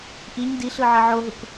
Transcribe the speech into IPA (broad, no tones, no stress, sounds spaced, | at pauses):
ʔ i ɲ d i ɬ ɯ ʕ ə ʕ o ɦ u k